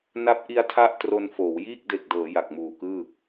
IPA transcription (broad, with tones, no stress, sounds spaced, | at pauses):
n a˦˥ p̚ ʔ i˦˥ a̯ tʰ a˥˩ ʔ t r o˧ n f oː˩˦ w j iː˥˩ k̚ d e˨˩ k̚ d ɤː˩˦ j a˨˩ k̚ m uː˨˩ k ɯː˥˩